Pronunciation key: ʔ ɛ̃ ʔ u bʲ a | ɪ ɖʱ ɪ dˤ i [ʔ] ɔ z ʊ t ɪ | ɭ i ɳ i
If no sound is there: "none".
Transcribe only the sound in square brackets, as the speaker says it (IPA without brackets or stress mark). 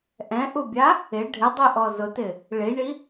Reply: ʔ